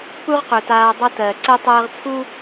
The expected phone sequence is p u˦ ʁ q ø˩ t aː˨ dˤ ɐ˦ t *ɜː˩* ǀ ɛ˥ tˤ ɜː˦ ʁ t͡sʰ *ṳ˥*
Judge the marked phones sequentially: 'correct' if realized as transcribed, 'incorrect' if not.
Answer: correct, incorrect: u˥

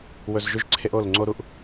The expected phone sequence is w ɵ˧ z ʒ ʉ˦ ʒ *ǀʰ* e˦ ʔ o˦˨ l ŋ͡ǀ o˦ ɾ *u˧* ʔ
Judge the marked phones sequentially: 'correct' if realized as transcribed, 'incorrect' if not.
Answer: correct, correct

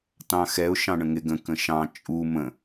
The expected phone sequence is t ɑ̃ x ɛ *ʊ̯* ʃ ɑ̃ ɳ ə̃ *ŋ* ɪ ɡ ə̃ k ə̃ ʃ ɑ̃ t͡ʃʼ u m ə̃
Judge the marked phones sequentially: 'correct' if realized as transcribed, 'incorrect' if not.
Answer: correct, correct

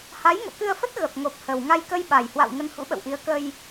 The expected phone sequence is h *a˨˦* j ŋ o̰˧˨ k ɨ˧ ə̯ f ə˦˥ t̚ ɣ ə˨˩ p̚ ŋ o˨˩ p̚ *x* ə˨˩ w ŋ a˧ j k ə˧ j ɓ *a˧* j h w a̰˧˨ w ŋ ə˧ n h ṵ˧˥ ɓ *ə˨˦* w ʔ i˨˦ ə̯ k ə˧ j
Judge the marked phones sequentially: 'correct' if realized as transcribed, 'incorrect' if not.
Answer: correct, incorrect: h, incorrect: a˨˩, incorrect: ə̰˧˨

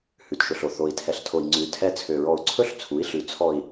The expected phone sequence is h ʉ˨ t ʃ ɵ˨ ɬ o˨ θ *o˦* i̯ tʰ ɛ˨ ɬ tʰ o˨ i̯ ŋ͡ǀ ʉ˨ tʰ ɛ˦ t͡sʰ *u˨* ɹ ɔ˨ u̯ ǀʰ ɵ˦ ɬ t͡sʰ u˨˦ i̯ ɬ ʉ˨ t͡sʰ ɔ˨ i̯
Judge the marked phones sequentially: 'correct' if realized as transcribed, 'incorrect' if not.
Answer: incorrect: o˨, incorrect: ø˨

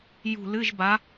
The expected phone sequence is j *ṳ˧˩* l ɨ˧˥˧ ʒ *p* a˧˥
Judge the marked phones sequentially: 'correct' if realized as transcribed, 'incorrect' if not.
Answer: correct, incorrect: b

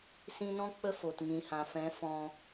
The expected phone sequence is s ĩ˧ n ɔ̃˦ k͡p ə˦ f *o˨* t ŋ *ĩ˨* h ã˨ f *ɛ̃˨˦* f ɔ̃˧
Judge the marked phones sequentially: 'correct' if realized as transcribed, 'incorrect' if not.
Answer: correct, correct, correct

